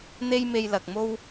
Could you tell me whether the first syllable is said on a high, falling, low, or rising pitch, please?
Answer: high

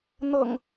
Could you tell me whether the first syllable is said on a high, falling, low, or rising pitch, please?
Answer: low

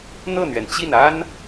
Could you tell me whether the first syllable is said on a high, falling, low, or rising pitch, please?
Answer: falling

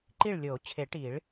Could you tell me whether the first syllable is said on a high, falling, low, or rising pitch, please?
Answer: falling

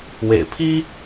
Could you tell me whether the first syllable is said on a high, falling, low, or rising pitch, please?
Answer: low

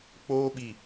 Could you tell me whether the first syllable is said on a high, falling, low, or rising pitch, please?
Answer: high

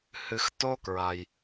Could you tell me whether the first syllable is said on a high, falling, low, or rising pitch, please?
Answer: low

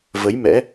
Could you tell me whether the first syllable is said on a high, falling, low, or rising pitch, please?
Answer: rising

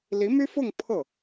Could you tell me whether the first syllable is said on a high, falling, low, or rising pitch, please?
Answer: rising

